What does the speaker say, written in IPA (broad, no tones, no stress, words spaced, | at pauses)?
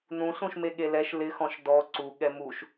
nũ ɬũʃmeɠelɛʃ lɪ xɔ̃ʃdɔ ǀu ɠɛmuʃ